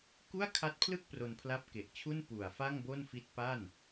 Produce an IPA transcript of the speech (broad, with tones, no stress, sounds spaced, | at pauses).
k u˥˩ a̯ kʰ a˦˥ t̚ pʰ l ɯ˥˩ k̚ p r o˧ n pʰ l a˦˥ p̚ k e˨˩ ʔ t͡ɕʰ u˥˩ n p u˨˩ a̯ f a˥˩ ŋ b o˥˩ n f i˦˥ t̚ p a˥˩ n